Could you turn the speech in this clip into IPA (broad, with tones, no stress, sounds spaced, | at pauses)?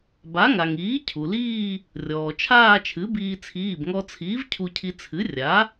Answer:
b a˩˥ ŋ a˩ ŋ iː˩˥ cʰ u˩ l iː˥˧ | rʲ ɔː˩ t͡ʃʰ aː˥˧ t͡ʃʰ ɨ˩˥ b iː˧ t͡sʰ iː˩˧˩ b ŋ ɔ˧ t͡sʰ iː˩˥ v cʰ u˧ cʰ i˧ t͡sʰ ɨ˩˥ rʲ a˩˥